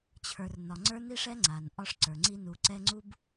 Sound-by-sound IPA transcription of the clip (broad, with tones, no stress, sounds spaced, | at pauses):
t͡ɕʰ ə˞˨ r n ɒ˨ ŋ͡ǀ ə˞˦ n i˦ ʂ ɛ˦ ŋ͡ǀ a˨ n ʔ ɒ˦ ʂ ǀ ə˞˨ ŋ͡ǀ i˦ n u˨ ǀ ɛ˦ ŋ͡ǀ u˦ b